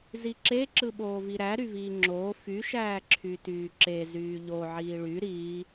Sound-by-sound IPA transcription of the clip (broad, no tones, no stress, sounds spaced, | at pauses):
z i ǁ e ǁ ɯ ɓ oː v i ɾ æ ɾ y v iː ŋ͡ǁ oː f y ʃ æː ǁʰ y t yː ǁ e z yː ʎ o ʕ iː ɭ y ɾ iː